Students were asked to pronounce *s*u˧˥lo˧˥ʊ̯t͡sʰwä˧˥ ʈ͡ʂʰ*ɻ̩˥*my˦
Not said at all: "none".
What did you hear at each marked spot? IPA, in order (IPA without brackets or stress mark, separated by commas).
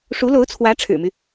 ʂ, ɻ̩˨˩